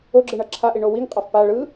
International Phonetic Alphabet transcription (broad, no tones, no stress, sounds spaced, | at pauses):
o ɡ͡ǁ ɯ ɳ ʌ ǁʰ a ʔ i ɳ o w i ŋ qʼ a f p a ɭ ɯ